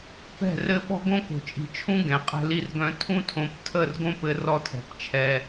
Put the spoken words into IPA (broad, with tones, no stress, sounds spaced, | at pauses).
p ɛ̤˦˨ r ɘ˦ ɓ ɔ̤˦ ɡ õ˦ k o̤˨ t͡ʃʼ i̤˨ t͡ʃʰ ũ˦ ɡ ɛ̃˨ qʼ ɛ̤˦ l i˦ r ɡ œ̃˦ tʰ ũ˦ tʰ õ˨˦ p tʰ ə˦˨ r ɡ õ˦ p ɘ˦ r ɔ˦ tʰ ɛ̤˨ p t͡ʃʰ ɛ˦